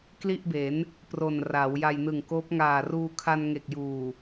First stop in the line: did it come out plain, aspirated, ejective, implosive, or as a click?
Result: plain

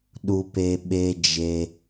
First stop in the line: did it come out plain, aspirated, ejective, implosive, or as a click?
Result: implosive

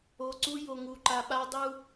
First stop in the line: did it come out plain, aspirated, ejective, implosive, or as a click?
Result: click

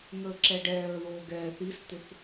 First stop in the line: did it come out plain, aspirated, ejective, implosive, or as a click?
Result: click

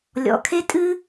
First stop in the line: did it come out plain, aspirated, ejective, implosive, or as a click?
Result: aspirated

